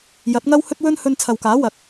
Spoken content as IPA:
jɐ˨˥t̚ŋɐ˥whɵ˥t̚wɵ˥n hɵ˧nt͡sʰɐ˨wkaː˨˥ wɐ˨˥k̚

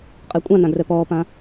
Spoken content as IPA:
qʼekʷʼãnãɡrɛ pɔːpã

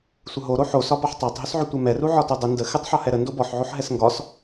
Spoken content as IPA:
sʷəɦo ɾoħosɒbɒħ tˤætˤɦʏsʕʏ tʷɛmɛru ʕɒtodˤɪ ndə xɪtˤħɒ hɛɾə ndobɔħʕoħ ɦɛsŋɡɒs

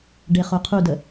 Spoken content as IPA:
ɖeχoqʰudə

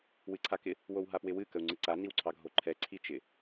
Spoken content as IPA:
wɨǀʰakɪ | wowɦapwɪwɨ kəu̯ŋ͡ǀɨǀa niwǀʰɑɡʱoǃʰɛ ǀʰit͡ʃɪ

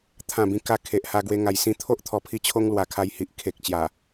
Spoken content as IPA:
t̪ʰã˨˩ bĩ˨˩ka˧ kʰe˨ʔha˧ ɡwe˧ŋa˨˩j sĩ˧t̪ʰo˦ʔ t̪ʰɔ˧pʰi˦t͡ɕʰo˦ŋ lwa˨˩kʰa˧jhi˨ʔ kʰe˨k̚t͡ɕja˨˩

